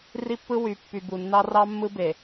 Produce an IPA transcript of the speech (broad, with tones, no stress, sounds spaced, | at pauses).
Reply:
r i˦ pː ɯ˦ w y˨ pː y˨ b u˨ nː ɑ˦ r ɑ˦ mː ɯ˦ b e˨